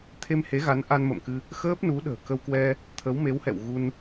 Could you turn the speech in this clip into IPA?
t̪ʰe˧mhe˨˦ɣa˨˦n ʔa˧nmə̰˧˨mkɨ˧ | xəː˦˥p̚nu˨˦ ɗə̤ː˨˩kə˧wkwɛ˧ | t̪ʰə˨˦wme˨˦whɛ̰˧˨w ɣu˧n

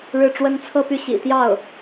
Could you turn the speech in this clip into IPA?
ɻɻ̩˥˩ʈ͡ʂwə˥n t͡sʰɤ˥˧py˥˩ ɕḭ˨˩t̪jɑ˥˩ʊ̯

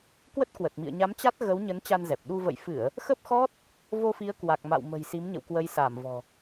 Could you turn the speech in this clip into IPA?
kwə˦˥t̚kwə˨˩t̚mḭ˧˨ə̯ ɲa˨˦m t͡ɕa˦˥t̚ ɣə˨˦w ɲə˨˦n t͡ɕa˧nzɛ˨˩p̚ɗu˧ və̰˧˨jfɨ˧˩˨ə̯ | xə˦˥p̚xɔ˦˥t̚ | vo˧fi˨˦ə̯kwa˨˩k̚ma̰˧˨w mə̤˨˩jsi˨˦mɲə̰˧˨w kwə˨˦jsaː˧˩mvɔ̤˨˩

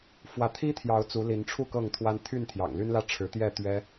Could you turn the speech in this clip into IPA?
fwä˨˦t̪ʰi˦t̪ʰjɑ˨˦ʊ̯ t͡su˨˦li˨˦nʈ͡ʂʰu˥˨ kɤ˥˨ŋt̪ʰwa˦n t̪ʰy˥˨nt̪ʰjɑ̰˨˩ŋly˦n lä˥˨ʈ͡ʂʰɻ̩˨˦t̪jɛ˥˨ t̪ɥɛ˦

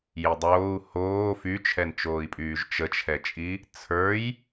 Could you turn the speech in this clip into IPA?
jidˤoːu̯ hoː fyt͡ʃʰɛnt͡ʃoːi̯pʼyːʒ t͡ʃət͡ʃʰɛt͡ʃʼi | t͡sʰə˞j

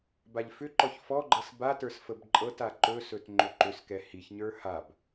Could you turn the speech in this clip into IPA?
baʎfʏǃɔç fɔɡ͡ǃɤs batə˞s fəbǃʼɤta ǃɵsɵt ŋ͡ǃɵǃʏskɛ hiçɲə˞ hab

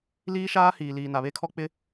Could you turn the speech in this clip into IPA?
liː˦ʃaː˦ hiː˨liː˨na˨βe˦ kʰɔ˦k͡pɪ˦

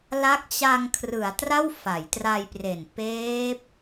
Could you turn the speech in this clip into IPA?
la˦˥k̚t͡ɕa˧ŋkʰrɯ˩˦a̯ tra˥˩wfa˩˦jtra˧jpre˨˩n peː˦˥p̚

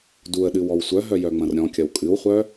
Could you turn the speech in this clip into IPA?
duə̯ɗɨw ɔwsʷœɦœ jœŋ͡mɐ̃rɾʲɔ̃kʲɐw kʼɨwχʷœ

